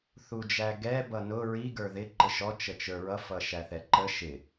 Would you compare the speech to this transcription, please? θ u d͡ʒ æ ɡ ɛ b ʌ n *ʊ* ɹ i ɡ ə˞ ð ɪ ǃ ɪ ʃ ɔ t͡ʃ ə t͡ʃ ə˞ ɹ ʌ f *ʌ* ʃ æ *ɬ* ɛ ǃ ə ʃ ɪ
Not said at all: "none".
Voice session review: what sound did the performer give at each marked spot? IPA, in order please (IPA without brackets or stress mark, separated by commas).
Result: ʊ, ʌ, θ